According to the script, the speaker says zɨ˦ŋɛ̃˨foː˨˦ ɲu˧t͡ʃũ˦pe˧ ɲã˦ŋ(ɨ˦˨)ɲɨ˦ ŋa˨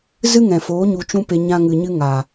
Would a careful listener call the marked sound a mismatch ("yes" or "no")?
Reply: yes